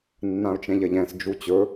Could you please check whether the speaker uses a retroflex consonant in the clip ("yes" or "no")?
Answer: no